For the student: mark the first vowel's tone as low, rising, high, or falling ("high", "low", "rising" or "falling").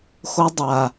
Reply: high